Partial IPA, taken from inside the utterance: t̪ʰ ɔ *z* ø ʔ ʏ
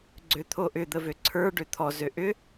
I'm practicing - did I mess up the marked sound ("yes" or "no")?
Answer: no